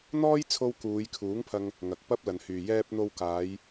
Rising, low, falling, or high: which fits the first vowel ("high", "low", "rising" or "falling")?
high